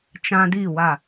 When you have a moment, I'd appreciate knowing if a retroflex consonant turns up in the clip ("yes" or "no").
no